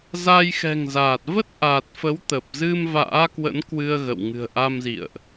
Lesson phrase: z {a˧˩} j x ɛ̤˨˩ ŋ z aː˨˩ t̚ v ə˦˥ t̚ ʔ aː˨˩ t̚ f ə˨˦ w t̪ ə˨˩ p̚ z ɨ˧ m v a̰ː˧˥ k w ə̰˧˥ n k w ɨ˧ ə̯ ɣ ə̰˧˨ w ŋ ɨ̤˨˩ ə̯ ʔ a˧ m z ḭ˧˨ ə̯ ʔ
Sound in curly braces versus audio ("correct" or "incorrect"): incorrect